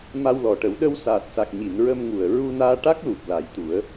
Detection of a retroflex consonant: present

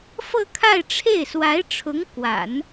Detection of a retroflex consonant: present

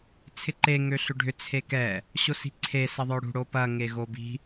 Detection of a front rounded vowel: present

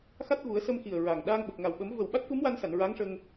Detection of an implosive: present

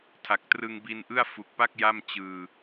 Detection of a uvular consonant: absent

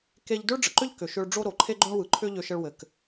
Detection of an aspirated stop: present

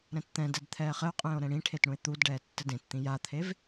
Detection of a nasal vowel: present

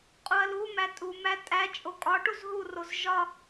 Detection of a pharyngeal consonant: absent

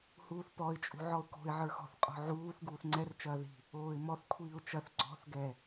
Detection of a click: present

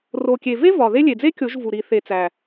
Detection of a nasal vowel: absent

